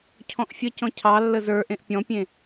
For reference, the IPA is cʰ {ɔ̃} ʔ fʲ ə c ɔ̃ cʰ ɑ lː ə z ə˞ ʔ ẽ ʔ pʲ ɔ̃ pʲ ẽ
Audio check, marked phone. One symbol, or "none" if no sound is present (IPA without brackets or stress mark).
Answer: ɔ̃